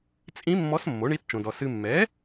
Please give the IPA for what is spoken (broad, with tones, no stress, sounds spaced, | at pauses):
t͡sʼ ĩ˧˥ mː ɔ˧˥ s mː o˩˥ ɳ i˧˥ t t͡ʃ õ˨ d ɔ˨ s ɨ˨ mː ɛ˩˥